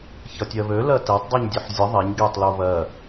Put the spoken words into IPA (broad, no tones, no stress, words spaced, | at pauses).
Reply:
çʌtʲɜβø lɜtɛtˤ dˤiɲdʲøħzʲə ðˤɛɲ ɡɛtˤ loβɜ